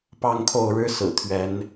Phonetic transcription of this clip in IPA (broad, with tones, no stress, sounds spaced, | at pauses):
p ɑ˥˨ ŋ kʰ o˥˨ ʊ̯ ɻ ɻ̩˦ s ɹ̩˨˩ t̪ʰ ɥ ɛ˨˦ n